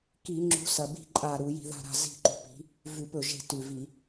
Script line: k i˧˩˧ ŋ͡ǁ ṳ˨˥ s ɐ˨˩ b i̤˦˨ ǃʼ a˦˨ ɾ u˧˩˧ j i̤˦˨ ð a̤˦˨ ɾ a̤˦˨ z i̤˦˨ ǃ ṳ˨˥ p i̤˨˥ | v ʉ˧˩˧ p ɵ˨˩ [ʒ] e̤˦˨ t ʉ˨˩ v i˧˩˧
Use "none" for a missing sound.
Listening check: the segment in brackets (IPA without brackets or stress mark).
ʒ